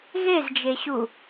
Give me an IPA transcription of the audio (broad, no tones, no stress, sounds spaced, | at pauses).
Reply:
ɣ e z d͡ʒ e ɕ u